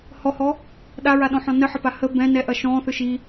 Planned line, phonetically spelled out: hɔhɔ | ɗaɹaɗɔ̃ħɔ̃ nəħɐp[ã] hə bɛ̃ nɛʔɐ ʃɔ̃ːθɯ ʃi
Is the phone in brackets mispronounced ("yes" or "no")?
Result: yes